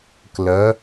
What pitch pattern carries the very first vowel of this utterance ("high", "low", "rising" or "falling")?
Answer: rising